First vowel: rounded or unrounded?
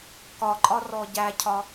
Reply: rounded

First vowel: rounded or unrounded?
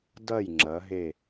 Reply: unrounded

